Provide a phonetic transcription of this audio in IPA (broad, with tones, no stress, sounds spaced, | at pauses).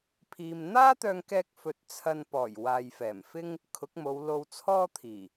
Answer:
pʰ iː˨ m n̪ aː˥ t̪ œː˧ ŋ k ɛː˧ k̚ f ɵ˨ t̚ t͡sʰ ɐ˧ n p ɔː˨˩ j w aː˨ j f ɛː˨˩ m f ɪ˥ ŋ | kʰ ʊ˨˥ k̚ m o˨˧ w l o˧ w t͡sʰ ɔː˥ t̪ʰ iː˨˩